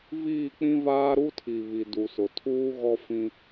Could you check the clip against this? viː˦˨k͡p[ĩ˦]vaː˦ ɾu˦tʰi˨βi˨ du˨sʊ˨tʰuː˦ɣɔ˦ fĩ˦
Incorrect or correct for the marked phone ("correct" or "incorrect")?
correct